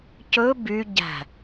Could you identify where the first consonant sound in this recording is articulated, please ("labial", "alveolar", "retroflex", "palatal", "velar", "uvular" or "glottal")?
palatal